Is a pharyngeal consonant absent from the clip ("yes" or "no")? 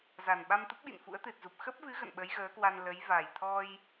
yes